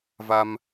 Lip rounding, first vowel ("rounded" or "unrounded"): unrounded